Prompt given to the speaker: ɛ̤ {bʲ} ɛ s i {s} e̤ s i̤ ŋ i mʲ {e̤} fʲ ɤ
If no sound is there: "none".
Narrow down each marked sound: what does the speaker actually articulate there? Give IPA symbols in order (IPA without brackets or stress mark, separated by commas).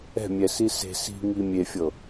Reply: mʲ, s, e